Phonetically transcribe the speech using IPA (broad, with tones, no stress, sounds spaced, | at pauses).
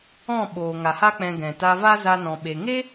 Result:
ɔ̃˦˨ ɓ oː˨ ŋ a˨ h a˦ k͡p ɛ̃˧ ɡ ɛ̃˨ t a˧ v a˦ z a˦ n ɔ̃˧ ɓ e˧ ŋ e˦